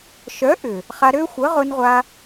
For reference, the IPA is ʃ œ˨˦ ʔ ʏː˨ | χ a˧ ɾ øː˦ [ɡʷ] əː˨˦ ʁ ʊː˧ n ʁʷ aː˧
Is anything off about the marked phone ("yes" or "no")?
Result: yes